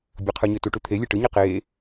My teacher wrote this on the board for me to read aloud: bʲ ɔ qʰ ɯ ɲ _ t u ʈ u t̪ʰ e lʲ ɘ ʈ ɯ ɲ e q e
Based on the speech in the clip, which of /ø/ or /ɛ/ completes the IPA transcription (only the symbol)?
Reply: ø